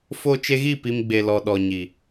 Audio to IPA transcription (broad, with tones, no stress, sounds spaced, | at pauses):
f o˧ t͡ʃ e˧ ɣ i˦˨ p i˧ m ɡ͡b e˨ l ɔ˨ ɗ ɔ˨ ɲ i˨